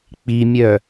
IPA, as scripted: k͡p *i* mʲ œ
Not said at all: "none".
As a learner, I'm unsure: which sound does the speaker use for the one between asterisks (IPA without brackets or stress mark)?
i